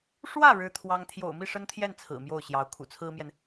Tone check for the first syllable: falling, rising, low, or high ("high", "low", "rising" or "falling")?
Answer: falling